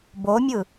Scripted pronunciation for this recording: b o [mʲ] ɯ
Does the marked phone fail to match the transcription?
no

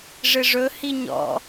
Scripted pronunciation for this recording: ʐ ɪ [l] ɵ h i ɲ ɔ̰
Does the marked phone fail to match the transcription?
yes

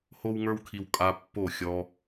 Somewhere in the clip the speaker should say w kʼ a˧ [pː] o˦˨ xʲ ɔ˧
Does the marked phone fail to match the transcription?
no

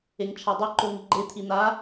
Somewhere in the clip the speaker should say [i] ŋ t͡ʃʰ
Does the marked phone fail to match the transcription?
yes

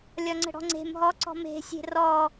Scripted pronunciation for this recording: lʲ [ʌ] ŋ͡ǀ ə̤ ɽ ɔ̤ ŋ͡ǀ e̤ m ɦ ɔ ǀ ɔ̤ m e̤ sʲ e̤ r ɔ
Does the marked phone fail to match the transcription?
yes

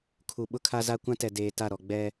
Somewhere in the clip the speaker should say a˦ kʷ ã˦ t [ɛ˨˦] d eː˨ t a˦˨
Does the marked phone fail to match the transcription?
yes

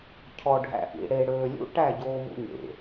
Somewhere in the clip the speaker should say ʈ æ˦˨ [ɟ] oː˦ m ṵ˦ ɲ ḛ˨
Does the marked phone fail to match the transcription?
no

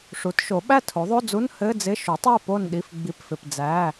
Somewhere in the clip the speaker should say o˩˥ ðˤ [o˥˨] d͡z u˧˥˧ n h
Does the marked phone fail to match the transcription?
yes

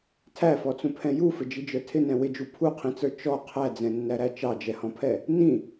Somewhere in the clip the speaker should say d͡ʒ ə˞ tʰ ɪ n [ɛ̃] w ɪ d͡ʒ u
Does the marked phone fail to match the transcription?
no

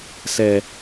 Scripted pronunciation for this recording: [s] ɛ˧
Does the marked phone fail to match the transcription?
no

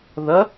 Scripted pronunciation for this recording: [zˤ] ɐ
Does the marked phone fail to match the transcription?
yes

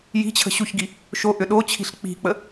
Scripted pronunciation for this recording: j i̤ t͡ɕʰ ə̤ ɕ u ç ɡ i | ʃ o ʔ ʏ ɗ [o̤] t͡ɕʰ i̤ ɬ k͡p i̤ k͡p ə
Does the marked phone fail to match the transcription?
yes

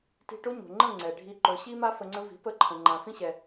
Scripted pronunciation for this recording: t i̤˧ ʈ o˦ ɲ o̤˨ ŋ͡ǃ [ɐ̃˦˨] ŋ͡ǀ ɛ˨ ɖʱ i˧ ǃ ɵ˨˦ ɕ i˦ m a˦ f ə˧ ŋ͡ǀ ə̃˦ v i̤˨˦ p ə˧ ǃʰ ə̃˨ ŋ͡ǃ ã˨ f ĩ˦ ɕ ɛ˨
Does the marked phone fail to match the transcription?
yes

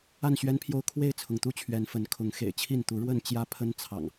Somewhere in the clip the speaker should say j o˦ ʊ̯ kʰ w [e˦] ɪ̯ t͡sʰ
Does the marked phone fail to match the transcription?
yes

